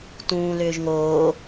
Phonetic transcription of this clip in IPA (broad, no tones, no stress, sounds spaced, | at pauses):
t ũː l ʏː ʒ ŋ oː